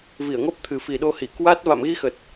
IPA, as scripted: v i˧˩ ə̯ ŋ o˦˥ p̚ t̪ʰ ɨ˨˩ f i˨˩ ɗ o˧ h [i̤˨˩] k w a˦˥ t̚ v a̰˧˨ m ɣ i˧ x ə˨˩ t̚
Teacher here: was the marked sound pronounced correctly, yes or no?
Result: no